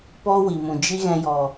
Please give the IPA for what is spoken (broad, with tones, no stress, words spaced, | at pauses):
pɔ˦wi˨mũ˨ d͡ʒi˦ɣɛ̃˧jɔ˨